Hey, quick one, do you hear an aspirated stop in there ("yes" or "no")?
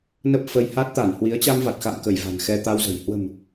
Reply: no